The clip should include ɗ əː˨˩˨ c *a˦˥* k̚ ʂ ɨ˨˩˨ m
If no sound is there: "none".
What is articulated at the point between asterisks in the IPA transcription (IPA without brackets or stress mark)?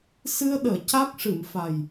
a˦˥